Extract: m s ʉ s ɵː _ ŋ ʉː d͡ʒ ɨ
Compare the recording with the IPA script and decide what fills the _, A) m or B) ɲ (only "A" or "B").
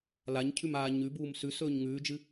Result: B